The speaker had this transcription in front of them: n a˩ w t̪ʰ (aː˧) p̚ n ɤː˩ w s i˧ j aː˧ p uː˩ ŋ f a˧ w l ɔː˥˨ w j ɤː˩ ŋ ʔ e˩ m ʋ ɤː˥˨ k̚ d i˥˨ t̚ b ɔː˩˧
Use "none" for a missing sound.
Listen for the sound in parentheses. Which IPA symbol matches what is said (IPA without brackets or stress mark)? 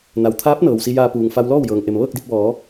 aː˧˥